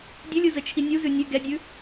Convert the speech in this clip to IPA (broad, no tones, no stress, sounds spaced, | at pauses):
dʲ ə lʲ u z ə t͡ʃʰ i nʲ u z ʉ nʲ ʉ ɡ ɛ dʲ ʉ